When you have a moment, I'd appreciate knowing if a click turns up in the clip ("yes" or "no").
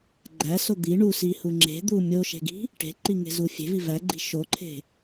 yes